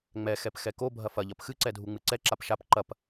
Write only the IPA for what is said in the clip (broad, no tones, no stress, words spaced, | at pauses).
ŋ͡mɛ xɛpxɛko bʱɐfɐʎɐp xɨǀɛdʱu ŋ͡mɨǀɛ ǁapʃap ǃɐp